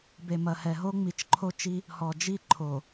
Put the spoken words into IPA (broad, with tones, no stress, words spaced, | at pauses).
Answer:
be˨mɐ˨hɛ˨ ɦo˦ŋ͡mi˨t͡ʃǃʰo˦t͡ʃi˦ | hɔ˨d͡ʒi˦˨ǃʰo˨